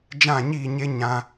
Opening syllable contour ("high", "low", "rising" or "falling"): falling